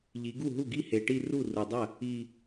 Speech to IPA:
ʎi˩˧ ɡu˥˩ɦu˥˩ɡi˥˧ he˨˩ʈi˥˧ ru˥˩ ru˨˩dˤɐ˥˩ | i˨˩

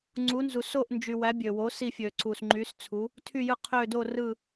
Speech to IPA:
ŋ͡ǀu˨˥nzu˨ so˦˨ʔnd͡ʒy˨ wæ˨˥bʲø˨wo˨˥ si˦˨fʲø˨ ǀu˨sŋ͡ǃy˨˥s t͡sʰu˨˥ | tʰy˦˨jɯ˦˨qʰø˦˨ do˦˨rɯ˦˨

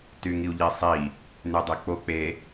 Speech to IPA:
tyŋiu̯ʎisˤi | nydˤek͡po k͡pe

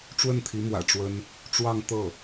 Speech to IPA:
ʈ͡ʂwə˥˩nt̪ʰi˧˥mwä̰˨˩ ʈ͡ʂwə˥n | ʈ͡ʂwɑ˥˧ŋ t̪ɤ˥˩

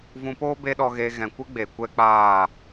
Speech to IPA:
vũ˧poː˦ be˦ɗɔ˧ɣeː˧ ɣɛ̃˨kʷɨ˦ ɡ͡be˨ kʷɛ˦k͡paː˦˨

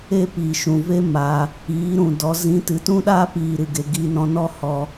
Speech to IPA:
e˦ piː˨ʃũ˨ve˦ ma˧ | iː˨˦ɾũ˨dɔ˨˦ zĩ˨˦tɨ˨tũ˦ɗaː˦ piː˧ɾɨ˨ɡe˧ ɡi˧nɔ̃˧nɔ˦ hɔ˧

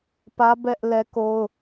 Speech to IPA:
pä˦ bɛ˦ʔ lɛ˦ko˦ʊ̯

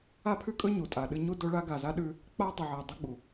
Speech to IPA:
a˦pʰʉ˦kʼɵ˦ ɲu˨tʼa˨ɗɨ˦ ɲu˦do˦ɭa˦ ɡa˨za˦ɗʉ˦ | k͡pa˦dˤɨ˨ʕɐ˨ dˤɐ˦ɡ͡bu˨

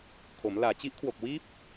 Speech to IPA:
kʰo˩˦mlaː˨˩ t͡ɕi˦˥ʔkʰwo˨˩k̚wiː˦˥p̚

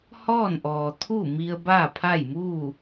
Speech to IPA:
hɔː˥˨nʔɔː˩ t̪ʰu˥˨ mi˧ə̯ baː˥˨pʰa˥˨jmuː˥˨

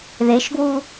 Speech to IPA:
ðeʃɡwu

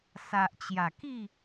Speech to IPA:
sa˨ʔt͡ɕja˨˩ki˥˧

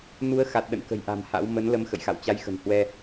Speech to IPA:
nu˨˦ə̯xa˨˩t̚ ɗə̰˧˨nkə̤˨˩jʔa̤˨˩m ha̰˧˥w mə˨˦nlə˨˦m xə̰˧˨jxa̰˧˨wt͡ɕa˨˦jxə̤˨˩n hwɛ˧

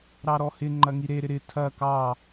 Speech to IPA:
ɾɑɾɔhɪ ŋ͡ǃɐŋiɾe ɾɪɾɪ tʰɐ kɑ

